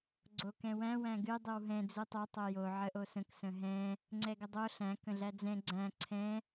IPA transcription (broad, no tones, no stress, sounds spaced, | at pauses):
ɡ͡ǀ o k ɛ̃ w æ̃ w æ̃ ɡ ɨ dˤ ɨ w ɦ ɛ̃ d͡z ɨ tˤ o tˤ o j o ʕ ə ʔ o s ə̃ k s ə̃ ɦ ɛ̃ | ŋ͡ǀ ɛ ɡ ə dˤ o ɬ æ̃ k ə̃ ɮ æ d͡z ɛ̃ ɡ͡ǀ æ̃ ǀʰ ɛ̃